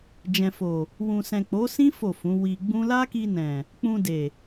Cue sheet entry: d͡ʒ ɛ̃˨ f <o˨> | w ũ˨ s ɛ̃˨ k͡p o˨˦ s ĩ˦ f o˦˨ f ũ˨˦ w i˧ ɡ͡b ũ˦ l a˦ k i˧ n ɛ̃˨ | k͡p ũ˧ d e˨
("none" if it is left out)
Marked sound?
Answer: o˨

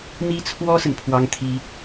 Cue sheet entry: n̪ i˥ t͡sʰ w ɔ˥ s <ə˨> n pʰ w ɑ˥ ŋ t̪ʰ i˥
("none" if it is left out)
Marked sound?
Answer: ə˨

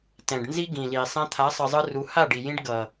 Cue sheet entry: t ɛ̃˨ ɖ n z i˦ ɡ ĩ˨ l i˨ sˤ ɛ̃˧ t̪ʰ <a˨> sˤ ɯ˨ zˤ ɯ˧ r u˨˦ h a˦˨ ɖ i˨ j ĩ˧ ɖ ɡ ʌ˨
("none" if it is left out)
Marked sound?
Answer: a˨˦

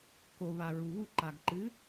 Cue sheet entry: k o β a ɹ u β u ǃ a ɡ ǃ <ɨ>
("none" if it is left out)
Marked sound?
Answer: ɨ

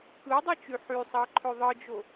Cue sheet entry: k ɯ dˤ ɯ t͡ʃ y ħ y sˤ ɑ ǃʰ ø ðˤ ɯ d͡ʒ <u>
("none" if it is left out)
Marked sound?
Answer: o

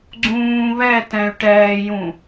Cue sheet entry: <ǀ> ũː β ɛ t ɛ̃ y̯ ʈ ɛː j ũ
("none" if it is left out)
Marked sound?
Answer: ɡ͡ǀ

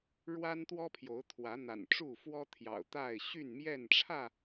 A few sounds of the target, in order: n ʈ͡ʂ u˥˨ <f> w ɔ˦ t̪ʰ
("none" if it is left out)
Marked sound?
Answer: f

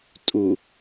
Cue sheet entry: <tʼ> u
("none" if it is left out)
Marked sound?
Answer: tʼ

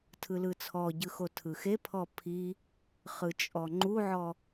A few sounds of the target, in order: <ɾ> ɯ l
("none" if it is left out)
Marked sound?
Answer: tʰ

